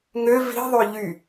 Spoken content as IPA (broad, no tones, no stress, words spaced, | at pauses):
ŋø vi̤ðˤø ʎy